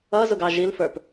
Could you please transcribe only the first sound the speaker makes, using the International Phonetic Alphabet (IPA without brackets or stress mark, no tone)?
ʌ